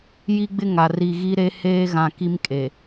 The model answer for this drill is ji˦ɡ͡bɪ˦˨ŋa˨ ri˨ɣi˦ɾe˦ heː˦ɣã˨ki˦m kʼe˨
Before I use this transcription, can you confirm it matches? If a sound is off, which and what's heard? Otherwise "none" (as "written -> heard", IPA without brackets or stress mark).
none